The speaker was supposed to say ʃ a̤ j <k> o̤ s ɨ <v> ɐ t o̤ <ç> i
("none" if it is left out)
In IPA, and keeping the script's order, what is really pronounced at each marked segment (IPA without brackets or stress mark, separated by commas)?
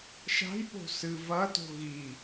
p, v, ɣ